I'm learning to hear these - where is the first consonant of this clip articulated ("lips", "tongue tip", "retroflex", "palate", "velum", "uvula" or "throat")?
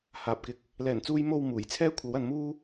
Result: throat